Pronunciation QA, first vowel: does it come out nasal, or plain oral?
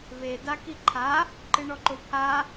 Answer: oral